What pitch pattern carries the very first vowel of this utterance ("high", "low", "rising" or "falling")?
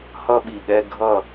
high